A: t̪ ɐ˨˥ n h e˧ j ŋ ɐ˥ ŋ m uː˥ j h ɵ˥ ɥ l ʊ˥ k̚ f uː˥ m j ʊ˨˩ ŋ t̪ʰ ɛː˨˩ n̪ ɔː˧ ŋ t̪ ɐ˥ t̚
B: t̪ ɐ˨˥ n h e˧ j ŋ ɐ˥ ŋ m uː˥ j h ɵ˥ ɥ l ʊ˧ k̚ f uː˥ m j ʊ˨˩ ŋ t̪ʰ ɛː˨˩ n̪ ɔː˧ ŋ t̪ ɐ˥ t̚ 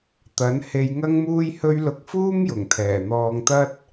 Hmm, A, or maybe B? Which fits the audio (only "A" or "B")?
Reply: B